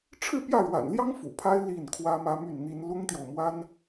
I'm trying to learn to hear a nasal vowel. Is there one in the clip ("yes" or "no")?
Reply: no